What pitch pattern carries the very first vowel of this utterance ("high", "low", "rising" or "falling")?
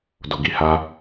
low